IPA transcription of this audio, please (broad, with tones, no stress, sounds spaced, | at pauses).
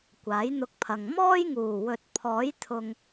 kʷ aː˨˥ j n̪ ʊ˧ k̚ pʰ ɐ˨ ŋ m ɔː˥ j ŋ uː˨˩ w ɵ˨ t̚ pʰ ɔː˨˥ j t̪ʰ ʊ˨ ŋ